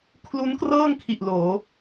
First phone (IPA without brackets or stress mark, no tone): kʰ